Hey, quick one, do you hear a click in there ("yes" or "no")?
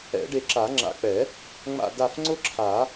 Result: yes